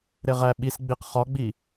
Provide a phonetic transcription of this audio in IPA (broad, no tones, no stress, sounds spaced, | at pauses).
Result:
ɾ e ʁ æ ɓ i s ɡ͡b i q χ ɒ ɡ͡b i